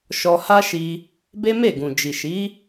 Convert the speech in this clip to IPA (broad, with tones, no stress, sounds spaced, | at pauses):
ʃ ɔ˧ h a˦ ʃ i˧ | b e˦ m e˦˨ ɡ ũ˨ d͡ʒ i˨ ʃ i˨˦